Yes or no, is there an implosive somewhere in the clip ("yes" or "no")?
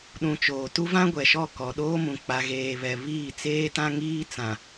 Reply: yes